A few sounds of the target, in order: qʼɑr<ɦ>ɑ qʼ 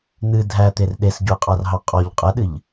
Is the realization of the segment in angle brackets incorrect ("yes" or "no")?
no